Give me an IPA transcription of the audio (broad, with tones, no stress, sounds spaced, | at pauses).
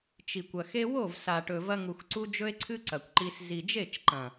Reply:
t͡ʃ i˨ kʷ ɐ˨ x e˦ w o˦˨ v s a˨ ʈ ɵ˨ v ɐ˧ ŋ u˨ x ǀ u˧ d͡ʒ ɵ˦ e̯ ǀʰ ɨ˦ ǀ ɐ˨ kʷ ǃ i˧ s z i˨ d͡ʒ e˦˨ t͡ʃ ǃ ɐ̃˨